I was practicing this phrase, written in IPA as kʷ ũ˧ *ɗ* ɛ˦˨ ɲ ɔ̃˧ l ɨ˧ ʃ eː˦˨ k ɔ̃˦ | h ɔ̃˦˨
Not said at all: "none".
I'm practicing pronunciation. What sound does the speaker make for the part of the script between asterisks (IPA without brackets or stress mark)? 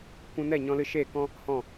n